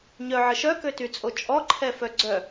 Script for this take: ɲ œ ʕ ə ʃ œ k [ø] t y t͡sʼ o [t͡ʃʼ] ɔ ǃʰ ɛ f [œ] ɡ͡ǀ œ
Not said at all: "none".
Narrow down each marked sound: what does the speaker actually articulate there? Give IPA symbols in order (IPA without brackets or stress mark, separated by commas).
ø, t͡ʃʼ, œ